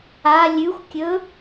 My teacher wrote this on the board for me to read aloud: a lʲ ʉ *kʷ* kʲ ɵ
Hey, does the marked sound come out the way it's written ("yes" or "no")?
no